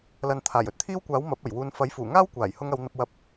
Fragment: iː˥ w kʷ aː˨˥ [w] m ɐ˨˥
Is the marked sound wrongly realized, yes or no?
no